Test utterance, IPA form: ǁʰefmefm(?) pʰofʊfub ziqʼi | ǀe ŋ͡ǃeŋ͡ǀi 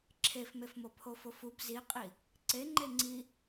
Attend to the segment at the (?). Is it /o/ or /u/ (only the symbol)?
o